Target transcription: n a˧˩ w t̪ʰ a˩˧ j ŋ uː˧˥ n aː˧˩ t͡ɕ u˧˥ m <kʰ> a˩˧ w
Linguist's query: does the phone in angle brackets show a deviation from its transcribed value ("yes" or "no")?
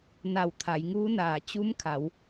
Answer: no